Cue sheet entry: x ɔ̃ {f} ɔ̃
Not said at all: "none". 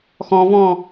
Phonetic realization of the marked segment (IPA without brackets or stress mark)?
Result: v